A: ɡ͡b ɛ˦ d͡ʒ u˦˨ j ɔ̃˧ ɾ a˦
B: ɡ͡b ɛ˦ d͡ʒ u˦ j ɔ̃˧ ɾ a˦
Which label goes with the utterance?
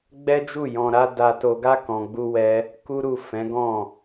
A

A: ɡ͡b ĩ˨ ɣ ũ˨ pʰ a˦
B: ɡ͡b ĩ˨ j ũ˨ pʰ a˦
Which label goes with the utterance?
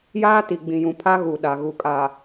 B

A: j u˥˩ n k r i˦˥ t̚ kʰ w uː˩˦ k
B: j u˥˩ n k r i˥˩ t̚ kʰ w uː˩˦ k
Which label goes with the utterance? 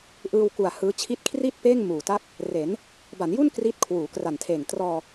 A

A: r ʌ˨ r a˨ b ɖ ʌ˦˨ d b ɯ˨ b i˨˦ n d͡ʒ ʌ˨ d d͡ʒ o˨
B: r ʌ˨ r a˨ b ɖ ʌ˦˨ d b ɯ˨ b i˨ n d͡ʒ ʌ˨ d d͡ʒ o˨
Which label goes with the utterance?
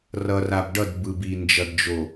B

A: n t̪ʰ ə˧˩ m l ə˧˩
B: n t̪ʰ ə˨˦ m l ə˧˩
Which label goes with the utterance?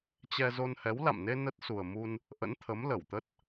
B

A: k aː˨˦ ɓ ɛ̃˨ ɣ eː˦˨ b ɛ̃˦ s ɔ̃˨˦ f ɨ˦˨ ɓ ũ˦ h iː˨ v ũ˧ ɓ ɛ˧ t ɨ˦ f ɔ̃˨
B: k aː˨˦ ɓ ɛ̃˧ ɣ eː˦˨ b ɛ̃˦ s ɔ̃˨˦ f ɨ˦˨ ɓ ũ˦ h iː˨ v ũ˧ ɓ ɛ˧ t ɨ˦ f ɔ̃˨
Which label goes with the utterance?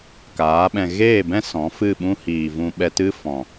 B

